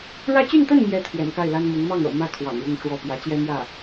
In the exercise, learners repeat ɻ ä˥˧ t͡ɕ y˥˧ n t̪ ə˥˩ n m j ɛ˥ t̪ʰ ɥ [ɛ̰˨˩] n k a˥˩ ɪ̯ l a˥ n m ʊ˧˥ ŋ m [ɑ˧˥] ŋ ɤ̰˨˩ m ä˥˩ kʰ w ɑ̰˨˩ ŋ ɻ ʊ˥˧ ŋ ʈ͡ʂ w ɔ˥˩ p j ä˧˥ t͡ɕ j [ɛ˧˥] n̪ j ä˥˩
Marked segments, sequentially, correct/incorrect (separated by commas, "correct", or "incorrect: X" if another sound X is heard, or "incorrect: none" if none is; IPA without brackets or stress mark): correct, incorrect: ɑ˥˩, incorrect: ɛ˥